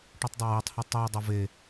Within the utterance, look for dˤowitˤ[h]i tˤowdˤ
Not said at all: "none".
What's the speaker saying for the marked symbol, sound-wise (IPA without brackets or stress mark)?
h